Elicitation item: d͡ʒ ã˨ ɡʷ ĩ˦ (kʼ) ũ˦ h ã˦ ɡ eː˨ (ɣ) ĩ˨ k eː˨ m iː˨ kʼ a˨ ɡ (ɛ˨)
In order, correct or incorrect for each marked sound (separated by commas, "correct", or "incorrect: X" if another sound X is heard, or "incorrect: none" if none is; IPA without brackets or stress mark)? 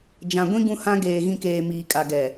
incorrect: ɡ, correct, correct